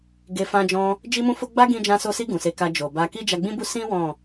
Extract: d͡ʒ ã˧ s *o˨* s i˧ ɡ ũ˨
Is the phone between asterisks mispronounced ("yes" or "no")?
yes